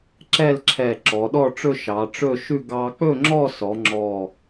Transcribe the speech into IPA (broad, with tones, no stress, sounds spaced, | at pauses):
ǁ ɛ˥˧ l ǁʰ ɛ˧˩ ǁ ɔ˩˧ ɗ ɔ˥˧ ʈ͡ʂ ɵ˥˧ ʃ ɑ˩˧ ʈ͡ʂ ɵ˥˧ ʃ ʉ˥˧ ɡ ɑ˧ k͡p ɵ˥˧ ŋ͡ǁ ɔ˥˧ s ɔ˩˧ ŋ͡ǁ ɔ˧˩